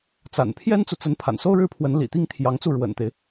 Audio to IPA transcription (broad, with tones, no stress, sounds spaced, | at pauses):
t͡s a̰˨˩ n pʰ j ɛ˥ n t͡s u˨ t͡s ə˧˥ n pʰ a̰˨˩ n s o˥ ʊ̯ ɻ ɻ̩˥˩ pʰ w ə˧˥ n l ḭ˨˩ t̪ i˥ ŋ t̪ʰ j ɑ˧˥ ŋ t͡s u˥˩ ɻ w ə̰˨˩ n t̪ e˦ ɪ̯